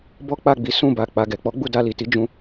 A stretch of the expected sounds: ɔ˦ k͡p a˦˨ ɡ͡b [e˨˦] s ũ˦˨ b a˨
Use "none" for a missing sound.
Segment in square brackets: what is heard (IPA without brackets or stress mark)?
i˨˦